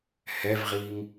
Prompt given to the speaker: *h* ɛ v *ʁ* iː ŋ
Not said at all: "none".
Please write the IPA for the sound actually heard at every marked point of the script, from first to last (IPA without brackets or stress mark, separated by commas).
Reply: h, ʁ